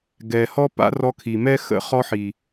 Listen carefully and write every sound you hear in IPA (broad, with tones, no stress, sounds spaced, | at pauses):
ɡ ɛ˨ h ɔ˦ p a̰˦ r ɔ˧ kʰ i˨ m ɛ˦ x ə̰˦ χ ɔ˦ ħ i˨